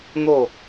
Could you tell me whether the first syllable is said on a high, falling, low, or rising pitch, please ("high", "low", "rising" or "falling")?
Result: falling